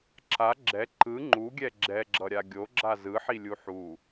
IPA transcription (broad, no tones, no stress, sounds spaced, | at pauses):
ǁ a ɡ͡ǁ ɛ ǃ ɯ ŋ͡ǃ u ɡʲ ɛ ɡ͡ǁ ɛ ɡ͡ǁ ʌ ɾʲ a ɡʲ o ɡ͡ǁ a z ɯ ħ i lʲ u ħ u